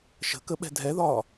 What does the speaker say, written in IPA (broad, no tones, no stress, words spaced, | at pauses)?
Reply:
ʃə̤kəɓɛ̤ dʱɛðɒː